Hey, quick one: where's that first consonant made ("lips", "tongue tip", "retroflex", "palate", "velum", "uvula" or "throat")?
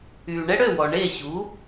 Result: retroflex